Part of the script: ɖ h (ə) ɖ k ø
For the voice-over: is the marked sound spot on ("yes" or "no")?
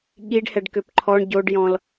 no